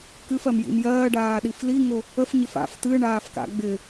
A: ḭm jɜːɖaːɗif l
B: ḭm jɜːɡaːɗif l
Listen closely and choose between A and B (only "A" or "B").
A